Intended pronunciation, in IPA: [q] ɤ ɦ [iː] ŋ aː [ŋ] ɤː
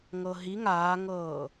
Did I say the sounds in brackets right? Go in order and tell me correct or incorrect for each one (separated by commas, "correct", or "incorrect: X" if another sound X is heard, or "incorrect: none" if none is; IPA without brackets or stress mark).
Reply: incorrect: ŋ, incorrect: i, correct